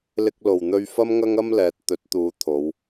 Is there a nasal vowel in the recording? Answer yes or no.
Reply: no